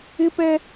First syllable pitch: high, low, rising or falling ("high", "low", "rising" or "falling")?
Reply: high